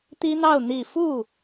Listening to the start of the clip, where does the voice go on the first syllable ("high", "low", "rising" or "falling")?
high